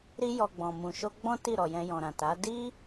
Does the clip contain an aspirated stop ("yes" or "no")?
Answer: no